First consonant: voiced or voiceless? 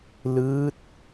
voiced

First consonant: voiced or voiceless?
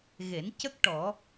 voiced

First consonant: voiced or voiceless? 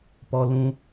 voiceless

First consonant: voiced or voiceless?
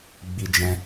voiced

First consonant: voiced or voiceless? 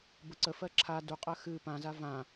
voiced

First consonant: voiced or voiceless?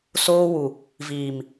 voiceless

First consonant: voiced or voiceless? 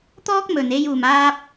voiceless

